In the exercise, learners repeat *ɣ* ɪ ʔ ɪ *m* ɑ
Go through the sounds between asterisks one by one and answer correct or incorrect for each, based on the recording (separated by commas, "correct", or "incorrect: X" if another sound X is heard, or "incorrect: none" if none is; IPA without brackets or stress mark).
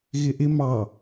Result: correct, correct